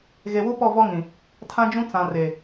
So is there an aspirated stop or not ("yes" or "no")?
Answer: yes